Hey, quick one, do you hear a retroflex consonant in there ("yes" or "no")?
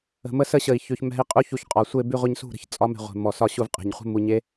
no